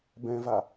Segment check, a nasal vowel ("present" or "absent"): present